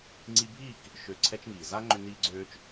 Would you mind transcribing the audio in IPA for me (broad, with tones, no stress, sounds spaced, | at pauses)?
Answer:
ŋ͡ǀ i˧ bʱ iː˦˨ k | ʃ ø˨ ǀʰ ɛ˦ t͡ʃ ŋ iː˨ z a˦ ŋ͡ǃ ʏ˧ n iː˧ ɡ͡ǀ øː˧ t͡ʃ